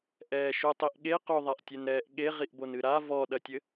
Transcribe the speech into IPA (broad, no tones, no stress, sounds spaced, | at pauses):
ʔ ɛː ʃ u tˤ i ʔ ɠ e q o ðˤ a ʔ tʲ ɛ n ɾ ɛː ʔ ɠ e ʁ i ʔ b o n ɨ ɾ a v ɔ ɗ ɐ tʲ ɘ